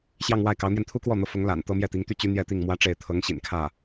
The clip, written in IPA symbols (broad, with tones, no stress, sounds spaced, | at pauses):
ɕ j ɑ˥˧ ŋ w a˥˩ ɪ̯ k ɑ˧˥ ʊ̯ n̪ j ɛ˧ n t̪ʰ u˥ k w ɔ˥˩ n̪ ɤ˧˥ f ʊ˧˥ ŋ l a̰˨˩ n t̪ ɤ˥ m j ɛ˥˩ t̪ i˧˥ ŋ t̪ y˥˩ t͡ɕ y˥ n̪ j ɛ˥˧ t̪ i˥˩ ŋ m w ä˥ ʈ͡ʂ e˥˩ ɪ̯ t̪ʰ ɤ˧˥ ŋ ɕ ḭ˨˩ n kʰ ä˥˩